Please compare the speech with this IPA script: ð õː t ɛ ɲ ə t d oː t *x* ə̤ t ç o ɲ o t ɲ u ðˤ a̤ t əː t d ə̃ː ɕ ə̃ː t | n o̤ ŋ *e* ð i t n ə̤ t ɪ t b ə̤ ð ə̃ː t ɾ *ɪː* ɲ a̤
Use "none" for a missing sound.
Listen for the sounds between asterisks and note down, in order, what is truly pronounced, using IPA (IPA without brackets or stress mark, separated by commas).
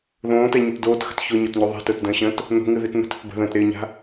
x, ɨ, ɪː